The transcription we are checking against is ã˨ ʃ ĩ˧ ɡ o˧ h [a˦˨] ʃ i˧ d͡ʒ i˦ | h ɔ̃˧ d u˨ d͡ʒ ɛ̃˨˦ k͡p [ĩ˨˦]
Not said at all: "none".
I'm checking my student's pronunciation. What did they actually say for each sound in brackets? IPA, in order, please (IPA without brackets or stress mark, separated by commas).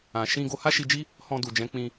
a˦, ĩ˧